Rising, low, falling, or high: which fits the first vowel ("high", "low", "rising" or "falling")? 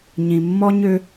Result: low